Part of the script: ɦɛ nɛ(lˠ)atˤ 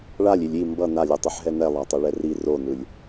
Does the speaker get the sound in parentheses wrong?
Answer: no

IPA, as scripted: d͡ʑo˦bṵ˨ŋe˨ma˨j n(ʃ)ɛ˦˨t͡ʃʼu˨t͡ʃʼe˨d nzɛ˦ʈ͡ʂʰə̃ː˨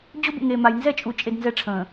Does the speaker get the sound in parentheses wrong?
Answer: yes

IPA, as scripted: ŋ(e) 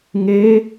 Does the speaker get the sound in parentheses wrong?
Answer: no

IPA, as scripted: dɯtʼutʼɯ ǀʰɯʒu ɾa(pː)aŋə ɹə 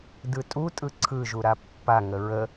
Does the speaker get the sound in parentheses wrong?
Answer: no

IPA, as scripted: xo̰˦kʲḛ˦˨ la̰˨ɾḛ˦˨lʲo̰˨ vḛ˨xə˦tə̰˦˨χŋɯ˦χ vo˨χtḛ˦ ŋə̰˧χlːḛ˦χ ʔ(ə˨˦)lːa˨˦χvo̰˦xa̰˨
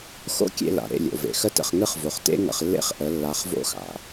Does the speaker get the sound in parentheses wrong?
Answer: no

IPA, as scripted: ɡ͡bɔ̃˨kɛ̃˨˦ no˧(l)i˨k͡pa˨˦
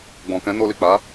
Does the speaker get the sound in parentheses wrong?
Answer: no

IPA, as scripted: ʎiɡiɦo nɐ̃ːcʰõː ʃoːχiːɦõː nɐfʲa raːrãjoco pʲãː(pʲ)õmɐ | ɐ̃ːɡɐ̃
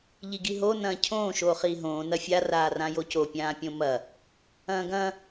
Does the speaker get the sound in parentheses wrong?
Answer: no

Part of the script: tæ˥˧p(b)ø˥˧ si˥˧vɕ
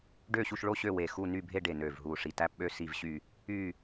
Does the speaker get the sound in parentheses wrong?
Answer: yes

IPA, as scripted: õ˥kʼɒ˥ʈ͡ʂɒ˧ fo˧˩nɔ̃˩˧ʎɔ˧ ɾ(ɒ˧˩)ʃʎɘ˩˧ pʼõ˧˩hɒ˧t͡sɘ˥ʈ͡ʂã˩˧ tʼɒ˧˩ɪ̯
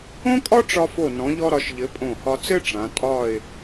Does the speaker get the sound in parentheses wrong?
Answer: yes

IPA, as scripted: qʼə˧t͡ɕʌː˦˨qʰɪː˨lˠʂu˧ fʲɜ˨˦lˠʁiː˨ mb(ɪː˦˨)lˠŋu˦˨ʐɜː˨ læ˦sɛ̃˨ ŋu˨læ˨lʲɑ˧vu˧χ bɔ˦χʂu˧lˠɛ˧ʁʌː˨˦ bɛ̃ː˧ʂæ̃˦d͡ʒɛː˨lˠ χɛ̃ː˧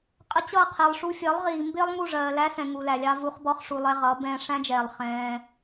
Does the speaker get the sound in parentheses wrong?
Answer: yes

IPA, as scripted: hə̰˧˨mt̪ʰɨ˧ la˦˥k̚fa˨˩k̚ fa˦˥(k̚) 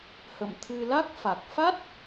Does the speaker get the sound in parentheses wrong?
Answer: yes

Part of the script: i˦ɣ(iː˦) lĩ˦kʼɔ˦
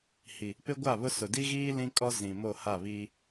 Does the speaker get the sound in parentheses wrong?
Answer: no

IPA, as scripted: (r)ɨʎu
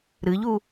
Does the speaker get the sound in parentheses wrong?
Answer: yes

